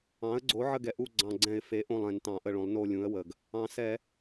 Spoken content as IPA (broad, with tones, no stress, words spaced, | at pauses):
ɑ̃˩˥ə̯ɡ͡ǀo˩˥ ʕə˦˨ɡɛ˩˥ʔu˦˨ ɡ͡ǀɑ̃˨˩ɡ͡ǀɛ̃˧˩˧ɪ̯fe˩˥ ʔõ˦˨lˠ ɛ̃˧˩˧n tɑ̃˧˩˧ʔə˦˨ɭõ˩˥lˠ no˦˨lʲũ˩˥ə̯wə˨˩ɡ | ɑ̃˨˩sɛ˧˩˧